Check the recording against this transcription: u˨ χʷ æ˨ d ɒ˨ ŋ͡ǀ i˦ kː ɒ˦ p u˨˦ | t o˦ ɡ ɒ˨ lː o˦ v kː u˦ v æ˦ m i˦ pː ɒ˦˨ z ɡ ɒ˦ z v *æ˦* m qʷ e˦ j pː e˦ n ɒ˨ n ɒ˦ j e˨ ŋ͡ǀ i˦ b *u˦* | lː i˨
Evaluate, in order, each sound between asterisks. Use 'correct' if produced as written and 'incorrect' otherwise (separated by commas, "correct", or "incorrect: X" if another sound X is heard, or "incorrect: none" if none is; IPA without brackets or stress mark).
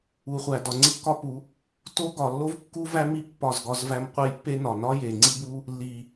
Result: correct, correct